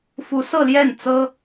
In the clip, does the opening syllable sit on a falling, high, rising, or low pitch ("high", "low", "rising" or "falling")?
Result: rising